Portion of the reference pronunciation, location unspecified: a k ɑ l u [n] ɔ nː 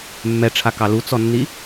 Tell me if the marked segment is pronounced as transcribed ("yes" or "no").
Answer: no